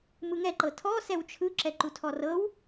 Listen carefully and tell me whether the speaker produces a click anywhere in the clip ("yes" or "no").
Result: yes